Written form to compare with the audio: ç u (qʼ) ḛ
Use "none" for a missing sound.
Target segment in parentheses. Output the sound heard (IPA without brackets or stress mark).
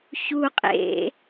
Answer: qʼ